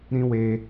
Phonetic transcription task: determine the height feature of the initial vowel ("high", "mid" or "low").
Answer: high